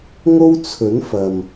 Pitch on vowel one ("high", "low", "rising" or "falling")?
high